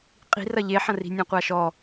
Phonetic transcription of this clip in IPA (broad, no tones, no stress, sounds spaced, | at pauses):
qʼ i̤ r ɐ ʎ e ħ ɐ̃ r i̤ nʲ ẽ qʷ a ʃ ɔ